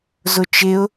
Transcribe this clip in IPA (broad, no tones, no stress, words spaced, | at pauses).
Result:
zʊt͡ʃɪʊ̯